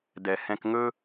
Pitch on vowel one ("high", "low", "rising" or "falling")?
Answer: low